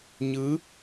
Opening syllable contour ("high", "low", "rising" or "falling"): rising